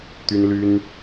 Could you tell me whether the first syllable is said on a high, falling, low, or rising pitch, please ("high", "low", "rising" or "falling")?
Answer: high